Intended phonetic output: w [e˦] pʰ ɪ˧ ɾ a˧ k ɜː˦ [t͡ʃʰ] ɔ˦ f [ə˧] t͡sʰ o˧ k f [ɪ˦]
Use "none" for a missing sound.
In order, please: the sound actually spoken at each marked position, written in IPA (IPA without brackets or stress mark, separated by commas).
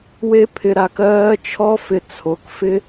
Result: e˦, t͡ʃʰ, ɪ˧, ɪ˦